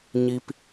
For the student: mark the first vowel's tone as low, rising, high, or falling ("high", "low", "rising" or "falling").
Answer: high